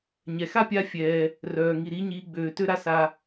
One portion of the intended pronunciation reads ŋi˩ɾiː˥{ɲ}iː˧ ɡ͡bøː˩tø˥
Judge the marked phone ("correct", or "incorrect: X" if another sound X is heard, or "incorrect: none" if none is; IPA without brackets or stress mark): correct